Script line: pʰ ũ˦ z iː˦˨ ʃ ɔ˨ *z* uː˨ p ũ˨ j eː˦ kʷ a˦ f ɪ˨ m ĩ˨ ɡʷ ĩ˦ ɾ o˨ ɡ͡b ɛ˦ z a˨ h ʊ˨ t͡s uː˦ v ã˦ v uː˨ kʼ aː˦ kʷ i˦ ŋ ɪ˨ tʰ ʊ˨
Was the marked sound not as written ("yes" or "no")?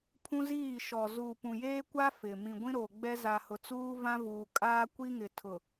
no